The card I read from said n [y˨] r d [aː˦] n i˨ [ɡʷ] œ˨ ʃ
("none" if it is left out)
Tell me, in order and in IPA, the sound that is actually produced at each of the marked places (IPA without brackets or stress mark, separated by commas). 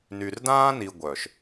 y˨, ãː˦, ɡʷ